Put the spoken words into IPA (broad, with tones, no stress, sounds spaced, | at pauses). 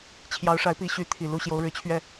t͡ɕʰ j ɑ˧˥ ʊ̯ ʂ a˧˥ ɪ̯ p i˧˥ ɕ y˧˥ t̪ʰ i˨˩ l u˧˥ ɕ j o˧˥ ʊ̯ ɻ ɻ̩˧˥ t͡ɕʰ ɥ ɛ˥˩